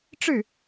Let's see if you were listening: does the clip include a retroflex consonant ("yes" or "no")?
yes